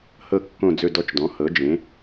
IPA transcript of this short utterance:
h ɤ˦˨ kː õ˦˨ d͡z ɵ˦˨ d ɔ˦˨ t͡ʃ d ɔ̃˩˥ h ɤ˩˥ d͡ʒ ẽ˩˥

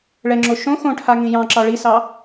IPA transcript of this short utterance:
ɭ ɛ ŋ͡ǁ o ʃ õ x õ ʈʰ a ŋ ĩ j ɑ̃ ǁ ɑ ɭ i s ɑ

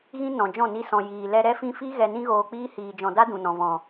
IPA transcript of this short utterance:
ɣ ĩ˦ n ɔ̃˨ d͡ʒ ɔ̃˦˨ n i˧ s ɔ̃˨ j iː˨ l ɛ˧ ɾ ɛ˦ f ĩ˦ f i˦ ɣ ɛ˧ n ĩ˦ ɣ oː˧ k͡p iː˦ h iː˧ d͡ʒ ɔ̃˧ d a˦ d ũ˨ n ɔ̃˨ v ɔ̃˨

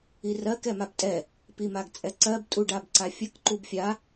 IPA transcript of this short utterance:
i r ɜ k ɛ m a b tʼ ɛ | p i m a ɡ t͡sʼ ɛ ǀ ɜ b tʼ u ɖ a b ǀ a fʲ ə k ǃ u b fʲ a

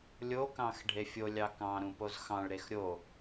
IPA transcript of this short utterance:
lʲ o k ɑ̃ x ɖʱ e fʲ o lʲ ɑ k ɑ̃ ɾ ũ p o z x ɑ̃ ɭ ɾ e x ɾʲ o

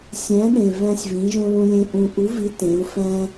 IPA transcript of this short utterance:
sʲ æ̃˨˥ ɗ ẽ˨˩ v æ̃˧ sʲ v ĩ˩˧ ʒ õ˧ l ũ˧ lʲ ẽ˧ ʔ ũ˨˩ ʔ u˨˥ v i˨˥ t ẽ˩˧ u̯ f æ̃˧

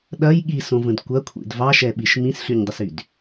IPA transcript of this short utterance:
ɗ ɐ j ɠ i s õ v ə̃ d kʷ ɐ kʷʰ ḭ d v ɑ ʃ ɛ ɓ i ʃ m ĩ s ɬ y ɲ dˤ ə s y d

